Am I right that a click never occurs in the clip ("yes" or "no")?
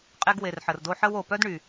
yes